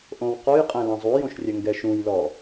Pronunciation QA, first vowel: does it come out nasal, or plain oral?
nasal